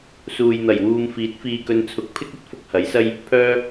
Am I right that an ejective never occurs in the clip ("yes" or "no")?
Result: yes